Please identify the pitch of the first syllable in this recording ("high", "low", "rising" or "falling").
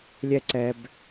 high